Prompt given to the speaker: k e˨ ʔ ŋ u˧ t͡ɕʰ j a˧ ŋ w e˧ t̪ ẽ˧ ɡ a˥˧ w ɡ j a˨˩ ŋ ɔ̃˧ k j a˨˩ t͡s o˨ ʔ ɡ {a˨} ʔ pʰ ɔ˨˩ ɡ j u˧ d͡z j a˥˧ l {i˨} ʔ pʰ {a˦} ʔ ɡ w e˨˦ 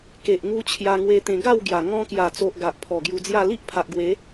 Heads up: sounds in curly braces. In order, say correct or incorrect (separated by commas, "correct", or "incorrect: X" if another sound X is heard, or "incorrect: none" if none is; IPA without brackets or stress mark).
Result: correct, incorrect: i˦, incorrect: a˨